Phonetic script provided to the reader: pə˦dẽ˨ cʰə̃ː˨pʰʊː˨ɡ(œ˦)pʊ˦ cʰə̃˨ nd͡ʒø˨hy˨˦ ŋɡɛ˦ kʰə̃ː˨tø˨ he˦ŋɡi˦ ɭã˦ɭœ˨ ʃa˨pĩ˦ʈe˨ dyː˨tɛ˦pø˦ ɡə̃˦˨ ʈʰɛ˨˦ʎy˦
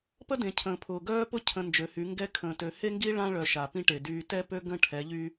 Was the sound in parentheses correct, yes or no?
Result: no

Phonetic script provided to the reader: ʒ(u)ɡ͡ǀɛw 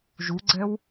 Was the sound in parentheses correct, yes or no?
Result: yes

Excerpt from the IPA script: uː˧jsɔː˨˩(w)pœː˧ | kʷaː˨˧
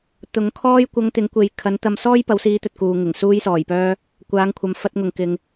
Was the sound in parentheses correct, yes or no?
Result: no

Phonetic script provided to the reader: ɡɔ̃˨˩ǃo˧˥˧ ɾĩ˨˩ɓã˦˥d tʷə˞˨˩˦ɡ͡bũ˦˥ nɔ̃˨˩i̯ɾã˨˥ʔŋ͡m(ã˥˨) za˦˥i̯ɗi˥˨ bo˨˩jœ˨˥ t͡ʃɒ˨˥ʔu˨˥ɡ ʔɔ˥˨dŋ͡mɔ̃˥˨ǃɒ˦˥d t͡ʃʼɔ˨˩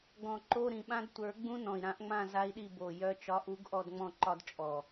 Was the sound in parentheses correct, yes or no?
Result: yes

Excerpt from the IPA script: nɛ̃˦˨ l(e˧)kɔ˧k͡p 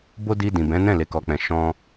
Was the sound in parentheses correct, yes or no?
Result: yes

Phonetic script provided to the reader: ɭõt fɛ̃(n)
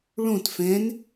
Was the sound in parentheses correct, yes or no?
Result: yes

